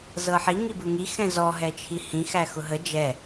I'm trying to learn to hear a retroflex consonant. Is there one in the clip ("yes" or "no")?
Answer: no